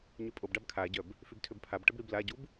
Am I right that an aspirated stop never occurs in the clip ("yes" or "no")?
no